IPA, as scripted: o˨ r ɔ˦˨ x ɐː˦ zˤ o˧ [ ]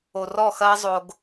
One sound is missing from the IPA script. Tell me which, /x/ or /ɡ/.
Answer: ɡ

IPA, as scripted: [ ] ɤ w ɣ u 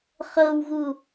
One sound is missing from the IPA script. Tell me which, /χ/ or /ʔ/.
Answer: χ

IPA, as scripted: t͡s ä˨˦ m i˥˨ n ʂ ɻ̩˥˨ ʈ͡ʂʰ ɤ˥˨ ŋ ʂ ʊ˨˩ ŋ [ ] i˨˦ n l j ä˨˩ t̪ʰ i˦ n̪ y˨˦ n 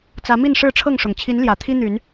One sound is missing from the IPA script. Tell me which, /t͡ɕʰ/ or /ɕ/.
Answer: t͡ɕʰ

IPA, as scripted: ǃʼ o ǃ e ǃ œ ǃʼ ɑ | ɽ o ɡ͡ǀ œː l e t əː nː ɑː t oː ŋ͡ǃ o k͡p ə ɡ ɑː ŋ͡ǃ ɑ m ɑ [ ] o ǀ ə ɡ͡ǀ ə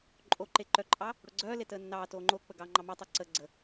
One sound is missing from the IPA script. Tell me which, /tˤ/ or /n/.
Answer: tˤ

